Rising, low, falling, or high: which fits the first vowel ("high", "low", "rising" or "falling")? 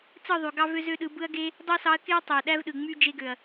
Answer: falling